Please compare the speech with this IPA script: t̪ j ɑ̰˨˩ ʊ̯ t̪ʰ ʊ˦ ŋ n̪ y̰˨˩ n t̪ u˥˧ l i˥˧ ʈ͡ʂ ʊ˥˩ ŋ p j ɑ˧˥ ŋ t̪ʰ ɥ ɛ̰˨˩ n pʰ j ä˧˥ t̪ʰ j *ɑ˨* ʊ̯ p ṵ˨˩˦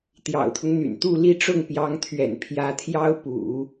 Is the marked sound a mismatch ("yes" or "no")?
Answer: yes